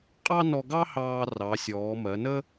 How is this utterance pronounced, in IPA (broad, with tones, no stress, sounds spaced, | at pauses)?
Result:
qʼ ɑ˥ n ɔ˧ ɡ ɑ˥ h ɑː˧ r ɑ˩˧ sʲ ɔː˩˧ m ɜ˩˧ n ə˥